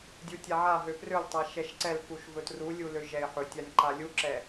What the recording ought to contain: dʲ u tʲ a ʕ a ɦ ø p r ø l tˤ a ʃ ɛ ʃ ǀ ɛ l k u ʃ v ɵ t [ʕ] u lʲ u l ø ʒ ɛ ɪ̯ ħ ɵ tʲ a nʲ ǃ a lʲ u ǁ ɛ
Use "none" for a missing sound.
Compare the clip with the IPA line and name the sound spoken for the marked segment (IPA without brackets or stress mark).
r